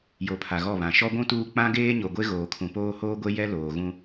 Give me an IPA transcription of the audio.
j o˨ pʰ a˨ ɣ ɔ˦˨ β ã˨˦ ʃ ɔ˦ ɡʷ ũ˦ t uː˦ k͡p ã˦ ɡ eː˦ ɲ o˨ ɡʷ e˦ ɣ oː˨ kʰ ũ˨ p oː˦ h oː˦ ɡʷ e˦ j ɛ˦ l oː˨ ɣ ũ˦

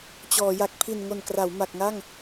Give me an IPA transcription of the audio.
t͡ɕ ɔː˩˦ j a˨˩ k̚ pʰ i˨˩ n ŋ o˨˩ n k r a˩˦ w m a˨˩ k̚ ŋ a˥˩ ŋ

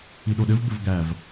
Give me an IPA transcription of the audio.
i ɗ o ɗ ɘ v b ɘ v ɡ æ v

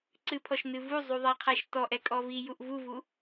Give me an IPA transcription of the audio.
ǀ ɨ pʰ ɔ ʃ n ɨ v u zˤ u ðˤ æ qʰ æ ʃ t ɔ ʔ ɛ kʼ ɔ v i j u ʔ v u v u

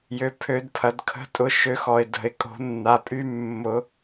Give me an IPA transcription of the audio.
j ø˨ pʰ ø˨˩˦ d pʰ ɐ˨˩˦ d kʰ ə̤˧˥ tʼ ʊ˨ ʃ ø˨˩˦ x ɔ˨ ɪ̯ d ə̤˨˩˦ ɪ̯ kʼ o̤˨˩˦ nː a˨ pʼ y˧˥ mː ʊ˨˩˦

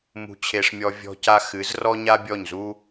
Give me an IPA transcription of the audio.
m ṳ˧ t͡ɕʰ e˧ ʂ mʲ ɔ˧ vʲ ɔ̤˦ c a˦ x ɨ˨˦ z r ɔ˦ ɲ a˦ bʲ ɔ˦˨ ɲ z u˦

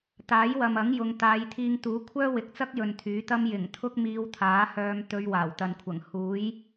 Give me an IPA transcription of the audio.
t̪ aː˨˥ j w ɐ˨ m ɐ˨˥ ŋ j ʊ˨˧ ŋ t̪ aː˨˧ j t̪ʰ iː˧ ŋ t̪ uː˨˥ kʷʰ œː˥ w ɪ˨ k̚ t͡s ɐ˥ k̚ j ɵ˨ n t̪ʰ yː˨˥ t̪ ɐ˥ m j ɪ˨˩ ŋ t̪ʰ ʊ˥ k̚ m iː˧ w t̪ʰ aː˨˥ h œː˧ m t̪ ɵ˧ ɥ w aː˨˩ w t̪ ɐ˨ n kʷʰ ɐ˨˩ ŋ h uː˨˥ j

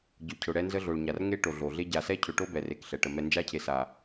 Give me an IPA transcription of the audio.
ɟ ʊ˨ cʰ ʊ˨ ɽ ɛ˦ n z ə˦ ɮ o˨ ɭ ɲ a˨ r ŋ e˦ ʈ o˨ ɮ o˨ ɮ e˦ ɟ a˨ s ɛ˦ cʰ ʊ˨ ʈ o˦ b ɛ˨ r e˨ k ɬ ɛ˨ ʈ ə˨ m ɛ˨ n d͡ʒ a˦ cʰ e˨ s a˨

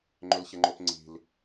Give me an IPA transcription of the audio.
ŋ͡ǃ ʏ l ç ɛ ŋ͡ǃ o p ŋ͡ǀ i̤ l

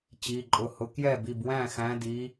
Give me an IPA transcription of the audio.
t͡ɕ i˩˧˩ ǃʼ ʊ˩˧˩ h ʊ˨˦ k j ɛ˥˩ b i˩˧˩ b w æ̃˥˩ x æ̃˨˦ d i˨˦

